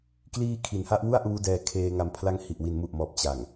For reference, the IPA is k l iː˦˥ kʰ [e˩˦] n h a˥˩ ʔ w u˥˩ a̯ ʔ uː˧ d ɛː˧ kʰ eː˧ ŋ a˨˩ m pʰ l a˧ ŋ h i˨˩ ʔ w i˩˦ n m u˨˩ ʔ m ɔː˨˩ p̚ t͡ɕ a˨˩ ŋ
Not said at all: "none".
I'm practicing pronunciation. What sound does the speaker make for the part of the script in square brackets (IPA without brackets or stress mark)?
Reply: i˩˦